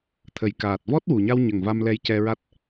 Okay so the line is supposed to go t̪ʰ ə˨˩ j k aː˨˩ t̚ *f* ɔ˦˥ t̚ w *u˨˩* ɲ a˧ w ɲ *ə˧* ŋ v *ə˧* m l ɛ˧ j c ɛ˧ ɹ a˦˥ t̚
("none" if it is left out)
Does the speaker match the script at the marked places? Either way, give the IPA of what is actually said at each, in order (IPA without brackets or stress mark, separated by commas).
v, u˨˩, ə˨˩, a˧